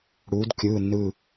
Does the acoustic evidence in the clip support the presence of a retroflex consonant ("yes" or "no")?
yes